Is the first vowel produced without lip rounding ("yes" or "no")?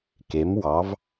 yes